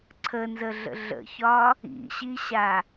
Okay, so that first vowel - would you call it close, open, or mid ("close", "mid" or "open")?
mid